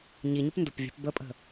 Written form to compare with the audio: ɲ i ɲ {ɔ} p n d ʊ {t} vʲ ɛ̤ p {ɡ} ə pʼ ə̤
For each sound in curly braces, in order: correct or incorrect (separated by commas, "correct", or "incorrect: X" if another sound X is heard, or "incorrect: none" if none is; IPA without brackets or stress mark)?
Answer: incorrect: ʊ, incorrect: p, incorrect: b